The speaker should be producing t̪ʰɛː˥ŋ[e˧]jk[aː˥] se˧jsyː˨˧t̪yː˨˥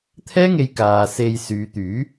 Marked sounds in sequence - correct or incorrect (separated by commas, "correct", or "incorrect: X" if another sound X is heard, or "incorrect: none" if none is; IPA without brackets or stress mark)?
correct, incorrect: aː˨